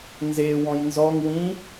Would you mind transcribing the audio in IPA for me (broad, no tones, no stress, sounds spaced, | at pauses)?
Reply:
n z e w ɔ̃ j n z ɔ ŋ w ĩ